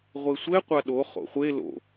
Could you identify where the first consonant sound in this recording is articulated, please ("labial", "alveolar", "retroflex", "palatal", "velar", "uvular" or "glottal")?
uvular